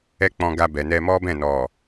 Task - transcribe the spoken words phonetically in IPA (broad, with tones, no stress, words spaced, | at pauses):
ɛ˦k͡pɔ̃˧ɡa˧bɛ˨ nɛ˧mɔ˦bɛ̃˦˨ nɔ˨